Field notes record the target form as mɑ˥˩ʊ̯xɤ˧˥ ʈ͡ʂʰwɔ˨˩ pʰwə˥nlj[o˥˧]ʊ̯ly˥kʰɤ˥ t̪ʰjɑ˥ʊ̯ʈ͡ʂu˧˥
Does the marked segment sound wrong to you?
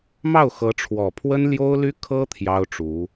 yes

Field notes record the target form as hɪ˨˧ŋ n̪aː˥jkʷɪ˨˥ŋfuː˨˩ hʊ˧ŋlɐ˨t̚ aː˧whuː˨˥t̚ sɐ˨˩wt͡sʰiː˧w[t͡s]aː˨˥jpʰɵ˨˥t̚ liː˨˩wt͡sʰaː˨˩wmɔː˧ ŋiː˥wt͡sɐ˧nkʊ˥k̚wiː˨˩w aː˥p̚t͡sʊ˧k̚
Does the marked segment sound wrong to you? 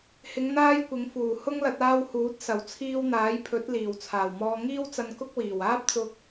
yes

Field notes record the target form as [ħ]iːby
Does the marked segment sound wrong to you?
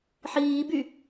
no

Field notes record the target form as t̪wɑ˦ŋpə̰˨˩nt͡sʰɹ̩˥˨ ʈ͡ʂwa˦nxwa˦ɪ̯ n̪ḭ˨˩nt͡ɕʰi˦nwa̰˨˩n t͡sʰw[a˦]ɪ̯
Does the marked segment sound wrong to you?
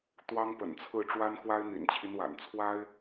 no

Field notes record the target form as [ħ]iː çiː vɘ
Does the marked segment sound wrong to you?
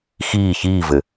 yes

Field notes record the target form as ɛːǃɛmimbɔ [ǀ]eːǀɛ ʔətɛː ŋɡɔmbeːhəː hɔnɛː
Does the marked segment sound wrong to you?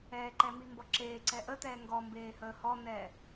yes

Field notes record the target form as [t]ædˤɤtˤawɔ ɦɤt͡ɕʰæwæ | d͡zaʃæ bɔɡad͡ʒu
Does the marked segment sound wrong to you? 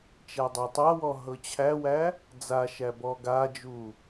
yes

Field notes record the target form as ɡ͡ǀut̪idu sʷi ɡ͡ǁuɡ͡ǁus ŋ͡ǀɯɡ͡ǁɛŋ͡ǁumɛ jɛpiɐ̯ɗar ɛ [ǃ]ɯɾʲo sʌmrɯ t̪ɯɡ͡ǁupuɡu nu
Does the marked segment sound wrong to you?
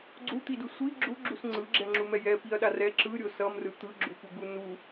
yes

